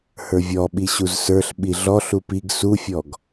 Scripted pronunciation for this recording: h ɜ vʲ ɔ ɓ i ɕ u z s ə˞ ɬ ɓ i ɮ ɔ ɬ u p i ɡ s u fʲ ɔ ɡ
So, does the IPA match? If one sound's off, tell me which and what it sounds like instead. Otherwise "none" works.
ɜ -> ə˞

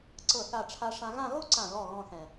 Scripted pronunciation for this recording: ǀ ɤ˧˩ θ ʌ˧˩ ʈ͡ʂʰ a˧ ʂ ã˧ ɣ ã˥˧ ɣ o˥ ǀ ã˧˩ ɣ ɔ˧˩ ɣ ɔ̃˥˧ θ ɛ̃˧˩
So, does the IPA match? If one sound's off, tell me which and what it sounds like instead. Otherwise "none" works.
ʌ˧˩ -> a˧˩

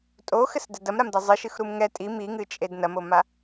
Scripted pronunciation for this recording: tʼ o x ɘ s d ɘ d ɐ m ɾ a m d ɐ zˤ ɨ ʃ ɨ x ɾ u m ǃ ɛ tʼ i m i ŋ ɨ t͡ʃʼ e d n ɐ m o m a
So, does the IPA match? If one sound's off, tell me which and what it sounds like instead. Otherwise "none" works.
ǃ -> ŋ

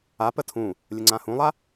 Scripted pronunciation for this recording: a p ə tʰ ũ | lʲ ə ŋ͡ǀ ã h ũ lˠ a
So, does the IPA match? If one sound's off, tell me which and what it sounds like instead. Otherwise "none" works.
none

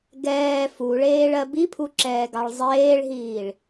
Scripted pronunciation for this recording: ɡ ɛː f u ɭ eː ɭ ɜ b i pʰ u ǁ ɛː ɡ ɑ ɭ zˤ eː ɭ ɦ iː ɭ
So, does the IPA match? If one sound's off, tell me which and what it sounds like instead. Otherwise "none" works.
none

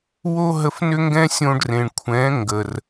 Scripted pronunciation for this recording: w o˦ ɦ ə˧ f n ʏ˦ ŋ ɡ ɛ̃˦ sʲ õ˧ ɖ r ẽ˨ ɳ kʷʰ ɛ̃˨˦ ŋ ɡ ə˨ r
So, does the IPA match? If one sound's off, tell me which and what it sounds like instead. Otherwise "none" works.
none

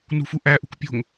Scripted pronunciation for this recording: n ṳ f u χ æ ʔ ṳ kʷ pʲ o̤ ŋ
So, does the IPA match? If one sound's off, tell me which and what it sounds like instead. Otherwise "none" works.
χ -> ʔ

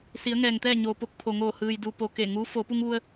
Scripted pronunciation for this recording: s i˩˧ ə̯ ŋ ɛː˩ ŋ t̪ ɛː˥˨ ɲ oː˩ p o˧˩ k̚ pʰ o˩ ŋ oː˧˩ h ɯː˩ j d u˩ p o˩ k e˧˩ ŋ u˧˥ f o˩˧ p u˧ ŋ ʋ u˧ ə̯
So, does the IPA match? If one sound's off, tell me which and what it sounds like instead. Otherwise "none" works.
none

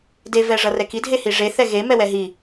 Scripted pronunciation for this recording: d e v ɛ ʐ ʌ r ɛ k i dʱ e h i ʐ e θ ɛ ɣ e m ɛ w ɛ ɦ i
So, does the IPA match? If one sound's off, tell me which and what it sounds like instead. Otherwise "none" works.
none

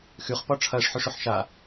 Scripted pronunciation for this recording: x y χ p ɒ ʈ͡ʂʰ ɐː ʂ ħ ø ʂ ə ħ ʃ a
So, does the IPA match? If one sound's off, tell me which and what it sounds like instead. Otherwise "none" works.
ə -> ø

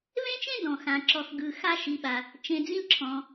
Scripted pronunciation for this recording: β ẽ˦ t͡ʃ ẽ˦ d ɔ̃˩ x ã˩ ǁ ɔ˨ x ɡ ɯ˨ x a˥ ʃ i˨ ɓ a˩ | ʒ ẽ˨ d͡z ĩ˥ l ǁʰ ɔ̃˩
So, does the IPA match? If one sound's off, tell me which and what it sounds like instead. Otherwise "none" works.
ʒ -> t͡ʃ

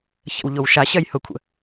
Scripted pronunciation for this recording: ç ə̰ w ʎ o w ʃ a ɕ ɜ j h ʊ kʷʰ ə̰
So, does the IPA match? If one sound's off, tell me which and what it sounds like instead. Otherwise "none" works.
none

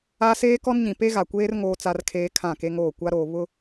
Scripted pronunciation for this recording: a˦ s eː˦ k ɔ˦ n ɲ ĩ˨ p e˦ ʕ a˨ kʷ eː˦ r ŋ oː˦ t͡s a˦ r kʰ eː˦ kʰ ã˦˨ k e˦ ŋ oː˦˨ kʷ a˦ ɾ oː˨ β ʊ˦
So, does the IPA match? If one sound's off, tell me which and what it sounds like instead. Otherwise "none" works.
ʕ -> ɣ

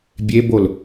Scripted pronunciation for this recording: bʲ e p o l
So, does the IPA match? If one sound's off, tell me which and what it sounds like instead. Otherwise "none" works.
p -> b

